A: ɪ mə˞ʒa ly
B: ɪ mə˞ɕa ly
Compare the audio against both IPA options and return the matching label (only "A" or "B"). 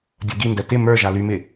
A